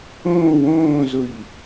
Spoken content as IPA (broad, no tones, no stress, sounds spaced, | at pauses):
õː w õː z ʊ ʎ